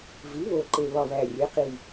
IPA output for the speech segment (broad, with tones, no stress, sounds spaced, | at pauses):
v i˩˥ β o˨˩ ǃ e˨˩ β ɒ˨˩ β æ˨˩ rʲ e˩˥ q i˨˩